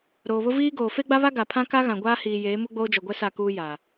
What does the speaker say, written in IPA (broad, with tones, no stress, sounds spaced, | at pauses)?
ɾ oː˨ β ʊ˦ v iː˦ ɡ oː˨ f e˦ ɡ͡b a˦ β a˦ ɡ a˨ pʰ ã˦ k a˦ ɣ ã˨ ɡʷ aː˦ h iː˨ j eː˨˦ m u˦ ɡ͡b oː˦ d͡ʒ ɔ˨ ɡʷ ɛ˦ s a˦˨ k uː˦ j a˨